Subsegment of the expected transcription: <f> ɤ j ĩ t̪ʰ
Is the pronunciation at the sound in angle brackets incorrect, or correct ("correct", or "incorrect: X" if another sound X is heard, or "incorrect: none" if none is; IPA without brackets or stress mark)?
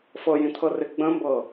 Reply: correct